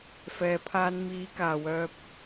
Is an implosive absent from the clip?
yes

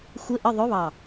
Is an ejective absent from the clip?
yes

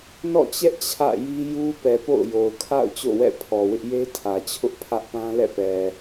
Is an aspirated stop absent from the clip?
no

